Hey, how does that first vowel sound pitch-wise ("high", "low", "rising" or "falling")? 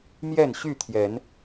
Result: falling